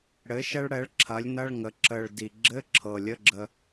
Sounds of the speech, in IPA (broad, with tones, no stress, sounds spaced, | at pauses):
ɽ ɘ˩˥ ʃ ɛ˧ ɭ ɽ ɛ˩˥ ɭ ǁʰ ɐ˩˥ lʲ n ɐ˧˥˧ ɭ ŋ ə˩˥ ǁ ə˨˩ ɭ d i˨˩ ɡ͡ǁ ɘ˧˥˧ ǁʰ ɤ˨˩ lʲ ə˧˥˧ ɡ͡ǁ ə˧